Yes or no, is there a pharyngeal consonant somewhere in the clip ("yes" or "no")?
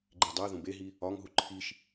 no